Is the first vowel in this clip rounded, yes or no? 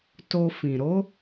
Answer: yes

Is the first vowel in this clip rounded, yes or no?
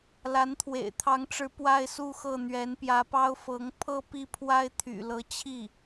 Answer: no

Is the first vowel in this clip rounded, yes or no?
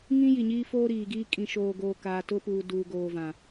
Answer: no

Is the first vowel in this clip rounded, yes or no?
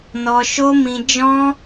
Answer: yes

